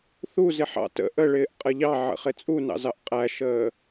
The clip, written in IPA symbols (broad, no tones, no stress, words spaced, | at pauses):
θu zɪħɑ̰tə̰ ʔəɭɪːʔ qʼəʎɑʕə̰ χɪt͡sʼunɑ̰zɑʔ qʼæʃəː